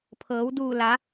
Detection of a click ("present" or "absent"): absent